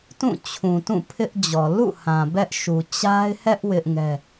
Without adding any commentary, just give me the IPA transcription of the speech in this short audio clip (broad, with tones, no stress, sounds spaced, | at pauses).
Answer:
t ũ˦˨ t͡ɕʰ ũ˨ t ũ˦˨ pʰ ɪ˦ ʔ d͡ʑ ɔ˨ l ṵ˦˨ h ã˨ b ɛ˦ ʔ ʃ u˨ t͡ɕ a˦ ɪ̯ h ɛ˦ ʔ w ɪ˦ ʔ ŋ ɛ˦